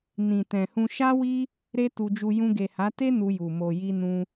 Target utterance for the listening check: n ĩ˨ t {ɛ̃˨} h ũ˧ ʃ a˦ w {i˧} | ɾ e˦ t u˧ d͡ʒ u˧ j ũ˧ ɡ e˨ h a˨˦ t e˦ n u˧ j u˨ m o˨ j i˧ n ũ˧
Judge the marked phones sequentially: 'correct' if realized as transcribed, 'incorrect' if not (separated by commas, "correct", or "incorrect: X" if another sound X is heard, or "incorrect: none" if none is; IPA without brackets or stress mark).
correct, incorrect: i˦